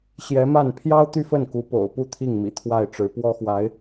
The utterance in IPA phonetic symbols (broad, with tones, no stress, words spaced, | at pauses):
ɕjɛ˧˥ma˥˩n pʰjɑ˥ʊ̯t̪y˥˧fə˥˩n ku˧˥po̰˨˩ʊ̯pu˥˧ t̪ʰi˥˩ŋmḭ˨˩t̪ʰwa˥˩ɪ̯ʈ͡ʂɻ̩˧˥ pwɔ˥xwa˧˥ɪ̯